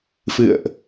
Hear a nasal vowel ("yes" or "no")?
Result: no